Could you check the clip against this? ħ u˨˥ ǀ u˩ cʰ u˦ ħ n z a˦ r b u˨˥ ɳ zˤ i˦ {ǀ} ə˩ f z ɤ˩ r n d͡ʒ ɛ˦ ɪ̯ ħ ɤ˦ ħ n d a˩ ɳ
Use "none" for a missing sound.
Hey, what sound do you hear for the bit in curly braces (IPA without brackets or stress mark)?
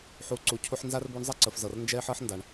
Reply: ǀ